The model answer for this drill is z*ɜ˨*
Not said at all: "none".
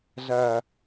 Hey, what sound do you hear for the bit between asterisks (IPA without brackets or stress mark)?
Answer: ɜ˨